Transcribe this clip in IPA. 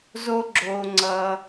z o˦ ɡ͡ǁ oː˧ ŋ͡ǀ ʌː˧

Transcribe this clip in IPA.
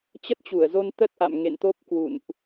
t͡ɕ ə˦˥ t̚ t͡ɕ u˧˩ ə̯ z o˧ n t̪ ə˦˥ t̚ ʔ a̰˧˨ m ŋ ḛ˧˨ n t̪ o˦˥ p̚ k w ṵ˧˨ n ʔ

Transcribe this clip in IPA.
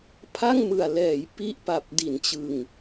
pʰ a˥˩ ŋ m ɯ˨˩ a̯ l ɛː˩˦ j p i˥˩ ʔ p a˨˩ p̚ d i˩˦ n t͡ɕ ɯ˨˩ ŋ

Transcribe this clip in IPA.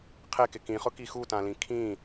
qʰ e k ɪ k ĩ χ ʊ k i x u t ã l ĩ kʰ ĩ

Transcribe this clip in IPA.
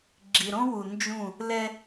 ɡ͡ǁ i˨ ɾ õ˦ w u˨ n d͡ʒ ũ˦˨ | l ɛ˦

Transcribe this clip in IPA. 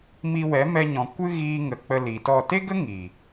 m i˧ w ɛ˨˦ m ɛ˧ ɲ ɔ̃˨ kʷ ɨ˦ ɣ iː˧ ŋ ə˨ k͡p ə˧ l i˨ t ɔ˦˨ t e˦ ɡ ə˦ ŋ i˨

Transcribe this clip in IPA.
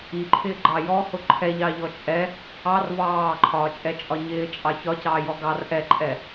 i ǃʰ ɪː ɡ͡ǃ ɑ j ɔ h ʊ ǃʰ ɛ ʎ ɑ ʎ ɔ t͡ʃʼ ɛ | ɑ r v ɑː ǃʰ ɒː t͡ʃʼ ɛ t͡ʃʼ ɒ ɲ ɪː t͡ʃʼ ɑ ç ɒ c ɑː j ɔ ɡ ɑ r ʔ ɛ ǃʼ ɛ

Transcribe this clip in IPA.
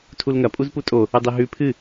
tʰ u l ŋ ɐ pʼ u z p u tʼ o | ɨ dˤ i ɦ ʉ pʰ ɨ

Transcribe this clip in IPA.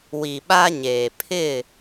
w i˨ ɓ a˦ ɲ eː˨ pʰ ɪ˦˨

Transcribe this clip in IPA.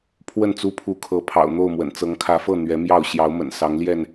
pʰ w ə˥˨ n t͡s u˦ pʰ u˨˦ kʰ ɤ˨˦ pʰ ɑ̰˨˩ ʊ̯ n̪ o˥˨ ʊ̯ m w ə̰˨˩ n t͡s ɤ˨˦ ŋ kʰ ä˨˦ f ɤ˥˨ n̪ ɥ ɛ˨˦ m j ɑ˥˨ ʊ̯ ɕ j ɑ˨˦ ʊ̯ m ə̰˨˩ n s ɑ˨˦ ŋ l j ɛ˥˨ n

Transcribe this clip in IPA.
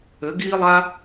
ɘ˨˦ ɡ iː˦ lˠ a˦

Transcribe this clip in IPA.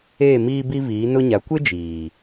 eː˦˨ m iː˦ b i˦ v iː˨˦ n ʊ˦ ɲ a˨˦ kʷ e˦ d͡ʒ iː˨

